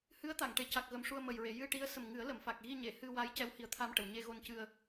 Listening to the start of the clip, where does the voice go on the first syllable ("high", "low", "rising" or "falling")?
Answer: rising